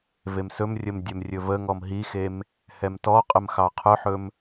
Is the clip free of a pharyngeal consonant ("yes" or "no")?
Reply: no